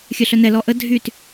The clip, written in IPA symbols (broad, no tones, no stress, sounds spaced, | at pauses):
xʲ œ ɬ œ n ɛ l ɔ ʔ ə dʱ y t